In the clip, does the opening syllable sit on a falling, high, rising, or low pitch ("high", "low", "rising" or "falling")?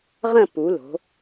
falling